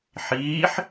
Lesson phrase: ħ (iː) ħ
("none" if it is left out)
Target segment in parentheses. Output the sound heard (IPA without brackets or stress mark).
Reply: iː